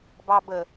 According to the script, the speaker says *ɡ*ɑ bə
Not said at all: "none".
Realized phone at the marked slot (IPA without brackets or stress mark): b